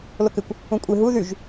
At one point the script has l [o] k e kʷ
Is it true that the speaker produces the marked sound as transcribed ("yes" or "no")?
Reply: yes